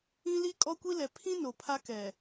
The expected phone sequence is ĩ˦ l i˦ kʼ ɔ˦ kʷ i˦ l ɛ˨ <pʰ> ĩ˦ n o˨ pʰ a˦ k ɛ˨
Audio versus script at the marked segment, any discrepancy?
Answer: no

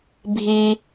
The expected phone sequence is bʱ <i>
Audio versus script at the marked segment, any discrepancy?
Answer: no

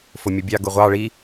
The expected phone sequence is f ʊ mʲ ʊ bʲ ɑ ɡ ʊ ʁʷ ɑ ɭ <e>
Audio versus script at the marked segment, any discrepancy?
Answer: yes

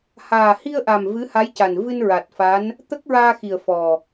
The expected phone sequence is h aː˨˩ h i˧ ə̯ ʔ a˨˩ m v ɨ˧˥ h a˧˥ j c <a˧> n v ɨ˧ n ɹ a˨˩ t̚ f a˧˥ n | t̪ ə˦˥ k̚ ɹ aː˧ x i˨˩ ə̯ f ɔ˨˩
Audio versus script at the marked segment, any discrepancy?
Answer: yes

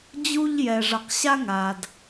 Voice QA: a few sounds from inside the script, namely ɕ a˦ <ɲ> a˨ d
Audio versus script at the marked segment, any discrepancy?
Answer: yes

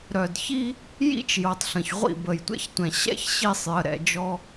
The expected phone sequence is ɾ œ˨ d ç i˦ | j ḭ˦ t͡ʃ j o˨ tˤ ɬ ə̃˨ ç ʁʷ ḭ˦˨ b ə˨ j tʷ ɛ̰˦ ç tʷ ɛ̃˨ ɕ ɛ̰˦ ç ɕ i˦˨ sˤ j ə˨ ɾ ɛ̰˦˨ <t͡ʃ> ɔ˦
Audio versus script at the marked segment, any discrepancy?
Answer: yes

